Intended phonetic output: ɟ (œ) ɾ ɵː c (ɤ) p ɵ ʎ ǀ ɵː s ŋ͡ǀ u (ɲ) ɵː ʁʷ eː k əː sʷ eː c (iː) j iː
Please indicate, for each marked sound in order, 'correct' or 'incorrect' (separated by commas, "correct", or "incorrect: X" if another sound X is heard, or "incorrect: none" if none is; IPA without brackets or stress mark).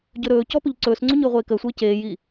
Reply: incorrect: ɵ, incorrect: ɔ, correct, incorrect: eː